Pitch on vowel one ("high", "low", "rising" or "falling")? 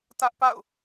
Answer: high